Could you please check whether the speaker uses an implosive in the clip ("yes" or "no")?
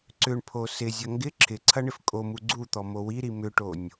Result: no